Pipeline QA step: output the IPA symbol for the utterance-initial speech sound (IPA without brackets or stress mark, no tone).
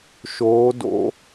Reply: ʃ